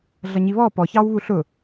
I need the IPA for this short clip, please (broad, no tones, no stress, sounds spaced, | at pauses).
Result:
ɮ ʌ ɲ i β ɔ p ɔ ç ɑ w β u ɬ ʊ